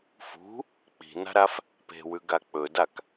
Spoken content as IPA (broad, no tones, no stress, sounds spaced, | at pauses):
f ṳ | k͡p i̤ n a̤ ɾ a f | p e̤ w ʉ ɡ a k͡p ɵ d a k